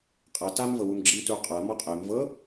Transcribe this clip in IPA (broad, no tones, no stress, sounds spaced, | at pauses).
qʼ a t a m v ɤ w u m ɡ͡ǁ i m t u qʼ a m ɔ qʼ ɛ m v ɤ